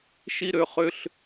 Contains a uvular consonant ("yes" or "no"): yes